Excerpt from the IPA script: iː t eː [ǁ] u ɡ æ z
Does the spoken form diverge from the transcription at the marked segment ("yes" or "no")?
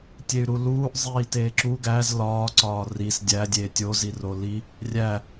no